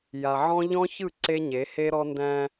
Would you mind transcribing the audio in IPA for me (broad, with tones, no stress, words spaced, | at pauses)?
ja˨ʕɔ̃˦ ʎɔ̃˦çɯ˦˨ ǀe˦ɲe˨˦ he˦ɾɔ˦ ndæ̃˦